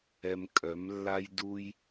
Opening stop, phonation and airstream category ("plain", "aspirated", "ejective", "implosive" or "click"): ejective